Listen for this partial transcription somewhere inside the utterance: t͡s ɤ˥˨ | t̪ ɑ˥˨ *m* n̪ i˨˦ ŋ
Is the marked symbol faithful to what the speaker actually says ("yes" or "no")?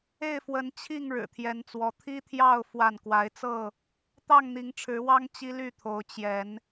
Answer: no